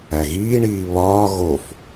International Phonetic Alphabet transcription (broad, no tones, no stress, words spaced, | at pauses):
æɣiːɳiː βɒː ɣof